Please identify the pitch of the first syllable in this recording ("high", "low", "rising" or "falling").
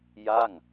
falling